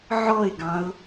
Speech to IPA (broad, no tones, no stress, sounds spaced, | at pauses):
ʕ ɔ ɪ̯ ɡ ɑ̃ ʊ̯